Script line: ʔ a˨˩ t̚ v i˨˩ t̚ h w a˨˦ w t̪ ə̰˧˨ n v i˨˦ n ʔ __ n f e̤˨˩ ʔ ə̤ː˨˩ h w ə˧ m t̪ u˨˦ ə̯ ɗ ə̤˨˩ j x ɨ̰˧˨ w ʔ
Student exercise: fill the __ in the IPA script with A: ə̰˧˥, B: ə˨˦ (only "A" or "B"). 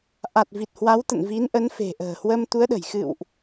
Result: B